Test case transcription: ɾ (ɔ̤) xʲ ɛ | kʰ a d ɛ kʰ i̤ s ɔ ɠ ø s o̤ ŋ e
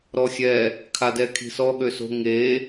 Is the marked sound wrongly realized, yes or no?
yes